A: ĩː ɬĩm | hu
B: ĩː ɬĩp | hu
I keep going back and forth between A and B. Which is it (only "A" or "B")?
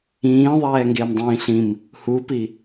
A